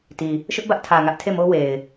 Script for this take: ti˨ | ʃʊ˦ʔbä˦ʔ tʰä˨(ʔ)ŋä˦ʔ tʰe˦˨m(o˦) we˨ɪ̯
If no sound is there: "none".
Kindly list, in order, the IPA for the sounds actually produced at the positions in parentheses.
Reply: none, o˦

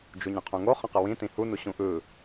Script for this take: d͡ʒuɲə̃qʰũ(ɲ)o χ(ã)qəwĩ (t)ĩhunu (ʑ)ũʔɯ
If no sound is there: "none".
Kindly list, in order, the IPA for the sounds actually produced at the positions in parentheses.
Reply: ŋ, ə̃, t, ɕ

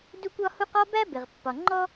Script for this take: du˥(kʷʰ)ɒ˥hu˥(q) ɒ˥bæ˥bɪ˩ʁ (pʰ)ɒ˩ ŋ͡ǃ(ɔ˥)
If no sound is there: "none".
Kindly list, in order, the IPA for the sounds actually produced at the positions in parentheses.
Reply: kʷ, q, pː, ɔ˥

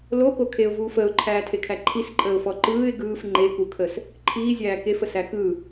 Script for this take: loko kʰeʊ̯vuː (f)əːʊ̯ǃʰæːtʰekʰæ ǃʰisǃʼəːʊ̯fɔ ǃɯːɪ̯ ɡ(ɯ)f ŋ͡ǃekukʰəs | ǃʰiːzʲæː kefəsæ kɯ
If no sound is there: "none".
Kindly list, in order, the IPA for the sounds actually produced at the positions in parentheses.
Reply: f, ɯː

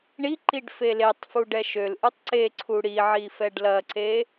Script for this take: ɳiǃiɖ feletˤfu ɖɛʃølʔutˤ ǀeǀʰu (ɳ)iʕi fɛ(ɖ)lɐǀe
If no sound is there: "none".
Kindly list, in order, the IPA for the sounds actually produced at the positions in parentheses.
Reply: ɽ, ɖ

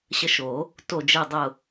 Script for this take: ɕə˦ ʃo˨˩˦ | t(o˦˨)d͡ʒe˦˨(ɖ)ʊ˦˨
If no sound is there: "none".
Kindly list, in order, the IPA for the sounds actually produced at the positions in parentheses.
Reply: o˦˨, dˤ

